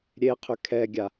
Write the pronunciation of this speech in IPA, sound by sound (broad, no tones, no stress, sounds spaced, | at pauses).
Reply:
ɾʲ e qʰ ʏ kʰ ɛ ɡʲ a